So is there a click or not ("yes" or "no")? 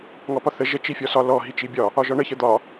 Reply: no